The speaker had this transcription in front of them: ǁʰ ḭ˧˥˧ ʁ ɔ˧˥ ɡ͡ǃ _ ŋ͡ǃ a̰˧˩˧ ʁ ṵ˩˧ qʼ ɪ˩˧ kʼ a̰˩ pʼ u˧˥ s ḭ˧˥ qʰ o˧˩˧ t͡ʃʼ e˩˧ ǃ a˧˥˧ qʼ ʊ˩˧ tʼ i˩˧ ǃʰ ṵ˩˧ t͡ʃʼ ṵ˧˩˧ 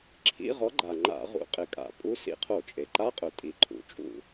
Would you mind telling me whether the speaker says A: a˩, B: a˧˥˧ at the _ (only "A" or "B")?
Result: A